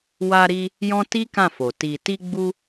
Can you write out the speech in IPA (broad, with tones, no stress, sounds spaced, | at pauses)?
w a˧ ɾ i˧ | j ɔ̃˦ t i˦ k ã˦˨ f o˨ t i˨ t i˧ ɡ͡b u˧